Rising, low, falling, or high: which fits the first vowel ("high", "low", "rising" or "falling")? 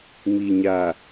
low